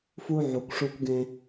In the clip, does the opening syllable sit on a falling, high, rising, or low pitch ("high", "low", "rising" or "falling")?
high